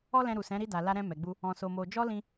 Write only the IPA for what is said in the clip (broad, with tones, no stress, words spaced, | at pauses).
ɔ˦lɛ̃˧ɾu˨sɛ̃˨˦ ɾi˧ da˨la˧ɾɛ̃˧ mɛ˨ɡ͡bu˧ | ɔ̃˧so˧mo˧ d͡ʒɔ˦lĩ˧